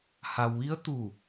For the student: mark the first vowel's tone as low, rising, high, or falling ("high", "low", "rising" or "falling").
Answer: low